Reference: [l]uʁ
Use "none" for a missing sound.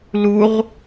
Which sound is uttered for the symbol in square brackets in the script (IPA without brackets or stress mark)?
l